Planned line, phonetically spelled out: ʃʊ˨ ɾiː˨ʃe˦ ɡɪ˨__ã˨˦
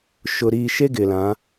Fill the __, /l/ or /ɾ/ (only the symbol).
l